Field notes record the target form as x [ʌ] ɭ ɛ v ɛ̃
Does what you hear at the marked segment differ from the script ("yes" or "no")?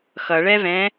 no